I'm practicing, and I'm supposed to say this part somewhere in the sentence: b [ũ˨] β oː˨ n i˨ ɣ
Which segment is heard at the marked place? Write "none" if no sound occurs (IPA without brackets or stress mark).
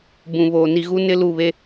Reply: ũ˨